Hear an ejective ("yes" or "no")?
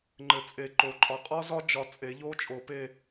yes